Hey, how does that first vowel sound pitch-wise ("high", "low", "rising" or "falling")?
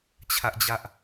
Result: high